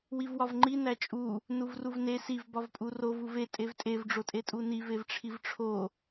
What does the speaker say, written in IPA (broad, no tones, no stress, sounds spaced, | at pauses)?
w i v w ɒ v ŋ͡ǃ i n æ t͡ʃʼ u | n u v r u v n e s i v b ɒ v pʼ u r o v u v e tʼ e v tʼ e v ɖ͡ʐ o tʼ e tʼ u n i v e v ʈ͡ʂʰ i v ʈ͡ʂʰ o